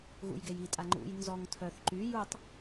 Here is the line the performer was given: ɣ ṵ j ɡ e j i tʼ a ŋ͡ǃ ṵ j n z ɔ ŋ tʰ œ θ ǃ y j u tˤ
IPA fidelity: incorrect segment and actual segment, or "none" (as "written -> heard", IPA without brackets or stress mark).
none